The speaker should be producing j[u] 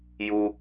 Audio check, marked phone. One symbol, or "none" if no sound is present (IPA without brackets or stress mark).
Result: u